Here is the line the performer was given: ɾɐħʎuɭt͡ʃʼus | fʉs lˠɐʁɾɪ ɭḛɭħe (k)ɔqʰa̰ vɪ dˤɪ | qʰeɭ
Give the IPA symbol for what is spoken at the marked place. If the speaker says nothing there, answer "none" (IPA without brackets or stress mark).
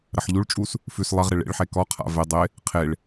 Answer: k